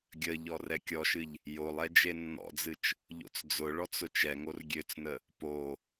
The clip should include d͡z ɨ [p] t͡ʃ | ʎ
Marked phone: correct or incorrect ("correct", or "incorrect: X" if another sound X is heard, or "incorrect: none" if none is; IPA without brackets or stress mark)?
incorrect: none